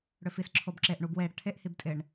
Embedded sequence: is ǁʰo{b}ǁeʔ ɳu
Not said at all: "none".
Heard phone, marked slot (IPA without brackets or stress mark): b